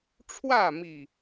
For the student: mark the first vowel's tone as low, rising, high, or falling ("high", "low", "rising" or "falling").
falling